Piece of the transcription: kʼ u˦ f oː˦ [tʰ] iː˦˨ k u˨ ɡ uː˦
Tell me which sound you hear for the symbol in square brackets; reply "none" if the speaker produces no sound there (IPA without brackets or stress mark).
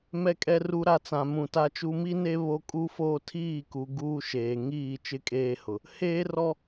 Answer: tʰ